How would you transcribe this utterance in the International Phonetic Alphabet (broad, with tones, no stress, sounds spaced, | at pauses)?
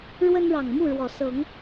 ɻ w ə˦ n ɻ ɑ˨˩ ŋ m u˥˨ ɻ w ɔ˨˩ s ɤ˨˦ ŋ